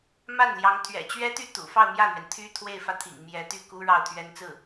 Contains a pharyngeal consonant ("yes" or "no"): no